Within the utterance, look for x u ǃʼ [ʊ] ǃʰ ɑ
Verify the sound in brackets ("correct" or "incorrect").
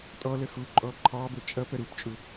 incorrect